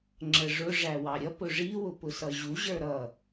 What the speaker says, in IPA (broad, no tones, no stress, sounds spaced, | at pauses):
ŋ͡ǁ ə ʐ ʊ ʐ æ w ɑ ɾʲ ʌ p ʊ ʐ i w ʊ p ʊ s ʌ ʑ u ʑ ə˞ ɾ ʌ